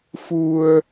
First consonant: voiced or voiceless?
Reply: voiceless